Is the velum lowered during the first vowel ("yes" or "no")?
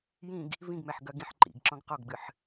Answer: yes